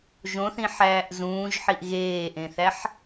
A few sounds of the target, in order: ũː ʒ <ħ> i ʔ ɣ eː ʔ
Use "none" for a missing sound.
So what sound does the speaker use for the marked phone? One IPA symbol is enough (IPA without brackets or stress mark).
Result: ħ